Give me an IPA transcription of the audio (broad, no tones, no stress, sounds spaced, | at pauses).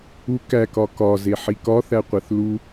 u k æ k ɒ k ɒ z e ħ i k ɒ θ æ qʷ æ θ l u